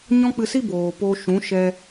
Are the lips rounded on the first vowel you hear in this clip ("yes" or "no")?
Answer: yes